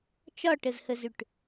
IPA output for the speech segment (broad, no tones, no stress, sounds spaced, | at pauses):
t͡ʃ ɒ ʈ ə z h ə z ʏ ʈ